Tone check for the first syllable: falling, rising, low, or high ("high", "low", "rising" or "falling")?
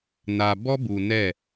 low